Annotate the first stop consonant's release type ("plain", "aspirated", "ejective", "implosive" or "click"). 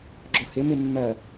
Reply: click